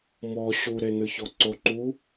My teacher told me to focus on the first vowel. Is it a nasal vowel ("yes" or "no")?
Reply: no